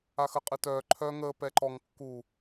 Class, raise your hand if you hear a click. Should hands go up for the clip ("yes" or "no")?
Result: yes